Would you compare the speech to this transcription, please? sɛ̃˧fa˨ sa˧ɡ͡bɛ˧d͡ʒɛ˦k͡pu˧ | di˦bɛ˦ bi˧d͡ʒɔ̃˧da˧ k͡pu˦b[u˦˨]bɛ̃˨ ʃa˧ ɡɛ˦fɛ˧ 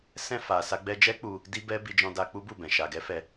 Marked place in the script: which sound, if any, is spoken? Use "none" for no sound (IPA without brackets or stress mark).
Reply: u˦˨